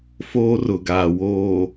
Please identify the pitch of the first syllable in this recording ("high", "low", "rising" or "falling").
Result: high